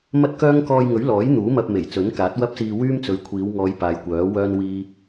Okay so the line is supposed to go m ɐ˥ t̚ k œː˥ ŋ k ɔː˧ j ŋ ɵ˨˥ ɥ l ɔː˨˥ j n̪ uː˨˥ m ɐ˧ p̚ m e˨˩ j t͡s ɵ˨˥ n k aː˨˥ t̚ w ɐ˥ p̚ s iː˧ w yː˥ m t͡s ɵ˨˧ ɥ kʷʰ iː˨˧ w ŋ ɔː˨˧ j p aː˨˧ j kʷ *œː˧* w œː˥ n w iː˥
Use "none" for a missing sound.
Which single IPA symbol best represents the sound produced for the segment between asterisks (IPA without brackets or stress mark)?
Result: œː˨˥